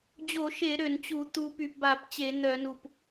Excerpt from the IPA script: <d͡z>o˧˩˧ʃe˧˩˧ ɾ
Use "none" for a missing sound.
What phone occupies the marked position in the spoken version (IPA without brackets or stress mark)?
d͡ʑ